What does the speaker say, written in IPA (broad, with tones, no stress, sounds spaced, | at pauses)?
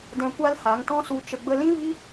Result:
d ɛ̃˧ kʷ a˦ l h a˨˦ ŋ t ɔ̃˦ s u˧ t͡ʃ ə˧ ɡ͡b ə˦ l ĩ˦ v i˦